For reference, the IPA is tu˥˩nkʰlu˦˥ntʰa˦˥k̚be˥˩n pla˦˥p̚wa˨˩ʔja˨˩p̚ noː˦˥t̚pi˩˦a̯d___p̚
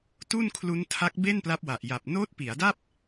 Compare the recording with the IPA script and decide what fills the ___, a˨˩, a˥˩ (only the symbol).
a˥˩